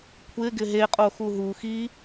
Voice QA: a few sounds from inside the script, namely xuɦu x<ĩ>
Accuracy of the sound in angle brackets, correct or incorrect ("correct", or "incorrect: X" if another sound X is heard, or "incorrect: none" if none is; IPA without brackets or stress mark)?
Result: incorrect: i